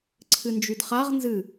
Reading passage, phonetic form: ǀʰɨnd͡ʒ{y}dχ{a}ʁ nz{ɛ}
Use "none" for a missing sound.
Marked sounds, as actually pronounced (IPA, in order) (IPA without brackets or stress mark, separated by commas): y, a, ɨ